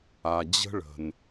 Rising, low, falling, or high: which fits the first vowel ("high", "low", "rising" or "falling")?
low